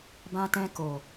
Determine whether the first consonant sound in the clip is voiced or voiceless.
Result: voiced